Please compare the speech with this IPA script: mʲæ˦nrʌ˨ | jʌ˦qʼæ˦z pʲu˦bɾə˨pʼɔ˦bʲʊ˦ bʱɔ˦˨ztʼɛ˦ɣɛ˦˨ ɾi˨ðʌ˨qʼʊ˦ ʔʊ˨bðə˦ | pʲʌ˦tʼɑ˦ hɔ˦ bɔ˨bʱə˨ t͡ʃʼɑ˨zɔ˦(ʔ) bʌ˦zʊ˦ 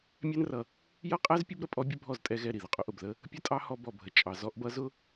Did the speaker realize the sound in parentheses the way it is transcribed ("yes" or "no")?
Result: yes